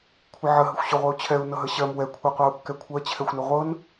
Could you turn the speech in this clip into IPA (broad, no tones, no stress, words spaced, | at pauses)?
kʷʰɪʕə ɦəxʷɕʊʁʷɛu̯t͡ɕʰɛu̯ nɤɦəɕɜm wɛ kʷʰɛqʷɜu̯kːɛkʷʰɜ t͡ɕʰɛxʷnʊʁʷɤn